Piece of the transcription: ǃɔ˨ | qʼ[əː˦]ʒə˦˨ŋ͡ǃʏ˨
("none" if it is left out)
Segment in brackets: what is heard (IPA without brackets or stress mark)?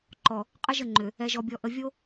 ə˦